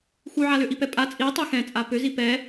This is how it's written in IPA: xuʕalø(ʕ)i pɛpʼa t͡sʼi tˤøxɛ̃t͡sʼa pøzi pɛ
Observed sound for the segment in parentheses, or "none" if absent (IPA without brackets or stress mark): ʔ